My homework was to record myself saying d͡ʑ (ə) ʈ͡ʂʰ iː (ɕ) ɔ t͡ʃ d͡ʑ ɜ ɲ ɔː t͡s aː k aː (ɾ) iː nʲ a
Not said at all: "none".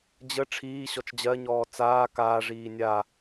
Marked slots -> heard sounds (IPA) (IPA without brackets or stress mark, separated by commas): ə, ɕ, ʐ